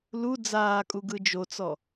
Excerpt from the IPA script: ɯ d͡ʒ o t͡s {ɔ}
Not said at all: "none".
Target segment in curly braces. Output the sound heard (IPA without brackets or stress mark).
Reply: ɔ